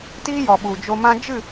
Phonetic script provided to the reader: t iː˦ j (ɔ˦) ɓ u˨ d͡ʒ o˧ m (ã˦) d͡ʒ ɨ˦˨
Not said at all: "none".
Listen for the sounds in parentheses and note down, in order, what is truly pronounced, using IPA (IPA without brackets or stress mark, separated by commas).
ɔ˨, ã˦